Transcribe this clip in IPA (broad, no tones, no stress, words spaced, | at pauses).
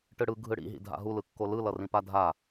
ʈɯɽɯ ɡʱɯɽḭ ɦḭdʱa̰ɦu lɯkːolɯ lʌrĩpadʱa